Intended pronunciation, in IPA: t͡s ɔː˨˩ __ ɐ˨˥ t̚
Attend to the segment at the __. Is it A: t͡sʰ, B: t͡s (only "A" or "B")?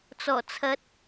A